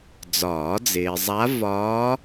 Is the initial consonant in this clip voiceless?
no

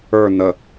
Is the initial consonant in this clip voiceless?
no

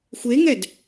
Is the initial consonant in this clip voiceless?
yes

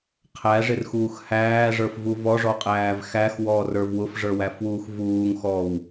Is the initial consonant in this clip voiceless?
yes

